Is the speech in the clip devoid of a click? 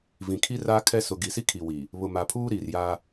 yes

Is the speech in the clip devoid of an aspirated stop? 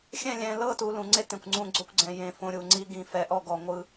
yes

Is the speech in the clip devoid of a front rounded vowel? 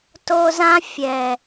yes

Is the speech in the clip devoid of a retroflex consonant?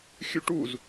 no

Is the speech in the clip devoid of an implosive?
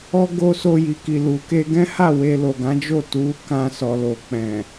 yes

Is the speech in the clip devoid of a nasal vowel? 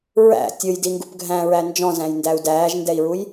no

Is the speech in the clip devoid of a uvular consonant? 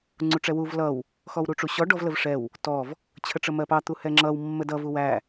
yes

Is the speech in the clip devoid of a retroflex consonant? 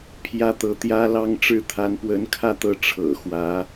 no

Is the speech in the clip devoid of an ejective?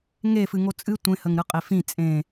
no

